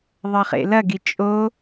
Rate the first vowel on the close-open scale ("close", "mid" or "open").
open